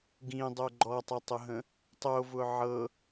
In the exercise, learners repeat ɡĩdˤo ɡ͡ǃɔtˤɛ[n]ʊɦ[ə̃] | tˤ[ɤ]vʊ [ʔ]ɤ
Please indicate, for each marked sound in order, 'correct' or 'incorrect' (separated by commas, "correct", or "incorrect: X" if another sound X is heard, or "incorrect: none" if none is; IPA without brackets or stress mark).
incorrect: tˤ, correct, incorrect: o, incorrect: ʕ